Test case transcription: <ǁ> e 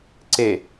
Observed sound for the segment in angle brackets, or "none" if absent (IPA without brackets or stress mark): ǀ